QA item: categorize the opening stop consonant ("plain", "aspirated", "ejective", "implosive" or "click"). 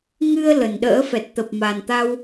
implosive